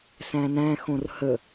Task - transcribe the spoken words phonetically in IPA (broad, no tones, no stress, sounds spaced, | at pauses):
s æ̃ n æ̃ x õ r h ə